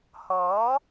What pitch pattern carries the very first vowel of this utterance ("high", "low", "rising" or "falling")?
rising